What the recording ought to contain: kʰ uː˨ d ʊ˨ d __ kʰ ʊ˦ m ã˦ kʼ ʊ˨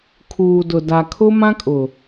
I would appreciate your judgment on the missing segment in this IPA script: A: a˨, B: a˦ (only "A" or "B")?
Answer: A